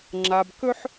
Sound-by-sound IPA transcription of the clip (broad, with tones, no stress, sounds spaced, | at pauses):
ŋ͡ǁ a˨ b k ɵ˦ ħ